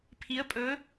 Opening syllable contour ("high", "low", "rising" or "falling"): rising